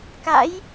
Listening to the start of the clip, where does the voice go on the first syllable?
rising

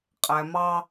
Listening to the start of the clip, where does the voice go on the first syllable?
low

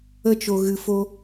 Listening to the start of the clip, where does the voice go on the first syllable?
high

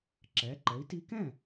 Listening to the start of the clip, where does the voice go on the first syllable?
rising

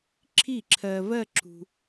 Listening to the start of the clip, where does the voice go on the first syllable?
falling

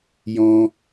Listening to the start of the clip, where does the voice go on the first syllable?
high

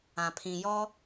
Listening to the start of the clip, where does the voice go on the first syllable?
low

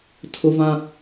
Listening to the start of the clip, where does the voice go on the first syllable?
high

